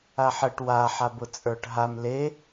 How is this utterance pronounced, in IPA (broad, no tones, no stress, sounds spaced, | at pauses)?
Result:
a ħ ə ʈ w a ħ a b ʊ t͡sʼ ə˞ ʈ ɦ a m l e